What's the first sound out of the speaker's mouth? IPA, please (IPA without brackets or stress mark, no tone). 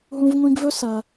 ɦ